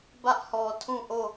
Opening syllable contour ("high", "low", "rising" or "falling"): high